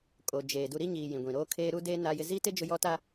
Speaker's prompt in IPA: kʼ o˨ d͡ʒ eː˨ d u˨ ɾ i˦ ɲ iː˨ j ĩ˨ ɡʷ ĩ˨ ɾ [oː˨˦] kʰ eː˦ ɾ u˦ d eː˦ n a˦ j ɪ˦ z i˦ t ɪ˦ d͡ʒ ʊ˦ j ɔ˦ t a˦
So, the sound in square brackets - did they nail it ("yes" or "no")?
no